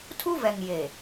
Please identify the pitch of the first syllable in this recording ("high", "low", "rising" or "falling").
high